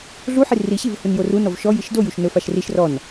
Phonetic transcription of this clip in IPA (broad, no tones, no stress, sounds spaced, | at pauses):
ɮ u ħ i r i ɕ i v h u n j o r u n ɔ v ʃ ɔ j i ʃ d o j u ʃ n ɵ f a ʃ r i ʃ r ɔ n